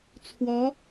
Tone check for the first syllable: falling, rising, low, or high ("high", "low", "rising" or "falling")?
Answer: rising